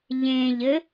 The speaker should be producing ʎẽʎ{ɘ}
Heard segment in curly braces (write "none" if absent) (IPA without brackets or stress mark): ɘ